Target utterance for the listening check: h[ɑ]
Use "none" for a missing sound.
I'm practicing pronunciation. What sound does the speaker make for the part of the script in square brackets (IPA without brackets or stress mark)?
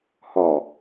ɒ